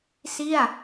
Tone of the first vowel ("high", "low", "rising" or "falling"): falling